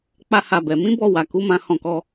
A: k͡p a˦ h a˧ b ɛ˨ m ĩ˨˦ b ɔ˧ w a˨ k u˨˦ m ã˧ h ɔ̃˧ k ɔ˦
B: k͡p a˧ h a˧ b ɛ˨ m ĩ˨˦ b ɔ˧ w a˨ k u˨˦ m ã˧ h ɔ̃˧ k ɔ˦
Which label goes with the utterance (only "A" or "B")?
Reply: A